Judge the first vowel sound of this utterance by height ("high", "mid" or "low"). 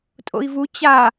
mid